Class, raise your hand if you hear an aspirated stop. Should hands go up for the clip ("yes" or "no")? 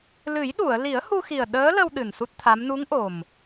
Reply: yes